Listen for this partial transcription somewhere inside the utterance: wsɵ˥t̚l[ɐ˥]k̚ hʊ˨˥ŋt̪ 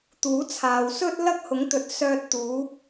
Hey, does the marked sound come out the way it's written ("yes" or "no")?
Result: yes